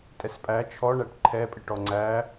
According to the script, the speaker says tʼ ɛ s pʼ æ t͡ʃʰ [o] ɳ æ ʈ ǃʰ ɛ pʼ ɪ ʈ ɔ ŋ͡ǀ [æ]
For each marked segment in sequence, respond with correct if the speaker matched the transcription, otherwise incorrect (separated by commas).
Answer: incorrect, correct